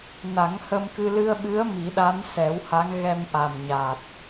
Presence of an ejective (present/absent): absent